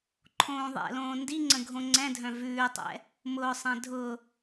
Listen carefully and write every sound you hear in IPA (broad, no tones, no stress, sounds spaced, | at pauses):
ǃʰ õː ðˤ ɛ̰ l õː n d i ŋ͡ǀ ə̃ ɡʱ õ ŋ͡ǀ ɛ̃ dʱ œ̃ v ʉː tˤ ɛ̰ | m ʊː sˤ ɛ̃ dʱ ʊ